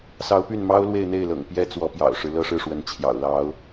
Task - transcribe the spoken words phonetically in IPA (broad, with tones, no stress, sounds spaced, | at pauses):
s ɑ˧˥ ʊ̯ p y˥˩ n m ɑ˥ ʊ̯ l w e˥˧ ɪ̯ n̪ e˥˩ ɪ̯ l ɤ̰˨˩ ŋ p j ɛ˥ t͡s w ɔ˧˥ p j ɑ̰˨˩ ʊ̯ ʂ ɻ̩˦ l ɤ˥ ʂ ɻ̩˥˩ ʂ w ə˧˥ n t͡ɕʰ j ɑ̰˨˩ ʊ̯ l ɑ˧˥ ʊ̯